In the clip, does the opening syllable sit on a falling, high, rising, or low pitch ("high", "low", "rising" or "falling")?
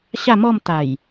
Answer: falling